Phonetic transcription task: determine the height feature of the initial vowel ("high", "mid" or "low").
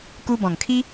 high